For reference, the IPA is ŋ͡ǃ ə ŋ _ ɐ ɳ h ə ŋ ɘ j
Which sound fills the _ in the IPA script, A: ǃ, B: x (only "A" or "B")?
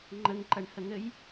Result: A